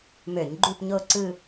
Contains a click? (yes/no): yes